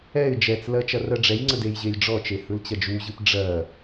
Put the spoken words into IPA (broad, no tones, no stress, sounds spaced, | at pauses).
ɛ ɪ̯ d͡ʒ ɛ t͡s l ɜ t͡ʃ ɐ r ɜ ɖ͡ʐ ɛ j ŋ͡ǀ ə d e j ʑ e j ɖ͡ʐ ɔ t͡ʃ e h ɯ l t͡ɕ ɐ d͡ʒ u ʑ ɯ p ɖ͡ʐ ɜ